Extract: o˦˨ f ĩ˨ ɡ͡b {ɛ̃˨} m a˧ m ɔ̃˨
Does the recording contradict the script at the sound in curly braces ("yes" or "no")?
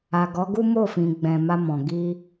no